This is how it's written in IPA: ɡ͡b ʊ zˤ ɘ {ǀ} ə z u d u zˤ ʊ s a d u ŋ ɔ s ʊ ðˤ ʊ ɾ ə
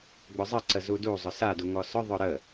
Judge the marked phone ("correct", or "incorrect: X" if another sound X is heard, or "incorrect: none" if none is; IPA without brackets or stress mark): correct